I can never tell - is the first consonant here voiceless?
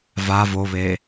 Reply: no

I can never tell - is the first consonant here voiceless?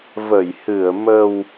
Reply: no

